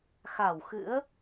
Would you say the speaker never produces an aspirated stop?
yes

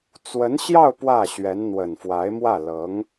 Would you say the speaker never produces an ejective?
yes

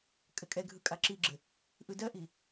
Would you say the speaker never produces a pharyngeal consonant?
yes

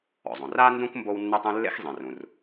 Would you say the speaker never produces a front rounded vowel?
no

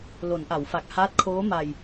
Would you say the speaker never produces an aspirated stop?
no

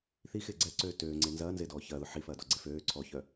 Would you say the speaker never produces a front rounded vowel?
no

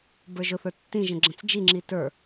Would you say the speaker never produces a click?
no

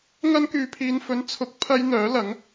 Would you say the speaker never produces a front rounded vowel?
no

